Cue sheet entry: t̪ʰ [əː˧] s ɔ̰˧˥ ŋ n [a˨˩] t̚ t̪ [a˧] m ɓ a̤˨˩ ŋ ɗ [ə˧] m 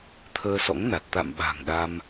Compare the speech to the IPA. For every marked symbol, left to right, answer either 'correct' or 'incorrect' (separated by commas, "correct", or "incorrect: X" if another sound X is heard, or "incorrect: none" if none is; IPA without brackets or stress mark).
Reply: correct, correct, incorrect: a̰˧˨, incorrect: a˧